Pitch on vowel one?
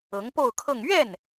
rising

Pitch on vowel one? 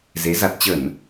rising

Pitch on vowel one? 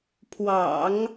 low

